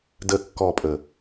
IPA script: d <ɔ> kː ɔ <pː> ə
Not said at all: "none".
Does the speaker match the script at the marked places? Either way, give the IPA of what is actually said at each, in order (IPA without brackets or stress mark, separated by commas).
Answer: ə, pʼ